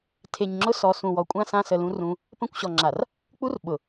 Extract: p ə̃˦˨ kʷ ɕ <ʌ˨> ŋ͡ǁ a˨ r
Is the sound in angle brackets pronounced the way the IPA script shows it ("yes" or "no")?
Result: no